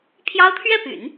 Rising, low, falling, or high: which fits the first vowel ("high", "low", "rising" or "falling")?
high